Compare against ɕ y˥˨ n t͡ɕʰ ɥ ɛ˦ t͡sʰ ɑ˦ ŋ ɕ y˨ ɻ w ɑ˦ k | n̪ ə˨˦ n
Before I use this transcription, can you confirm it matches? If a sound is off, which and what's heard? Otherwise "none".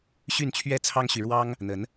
k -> ŋ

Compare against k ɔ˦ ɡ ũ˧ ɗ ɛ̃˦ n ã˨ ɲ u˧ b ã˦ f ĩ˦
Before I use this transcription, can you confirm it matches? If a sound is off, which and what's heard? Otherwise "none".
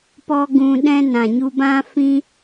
k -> p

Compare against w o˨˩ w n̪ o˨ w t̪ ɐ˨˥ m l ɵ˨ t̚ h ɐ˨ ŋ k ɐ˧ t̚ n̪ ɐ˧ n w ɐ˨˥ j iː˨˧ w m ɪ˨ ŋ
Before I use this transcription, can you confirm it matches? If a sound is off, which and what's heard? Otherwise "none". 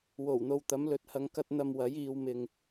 n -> m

